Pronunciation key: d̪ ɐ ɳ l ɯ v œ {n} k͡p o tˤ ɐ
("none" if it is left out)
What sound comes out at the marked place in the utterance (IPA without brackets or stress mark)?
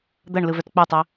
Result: t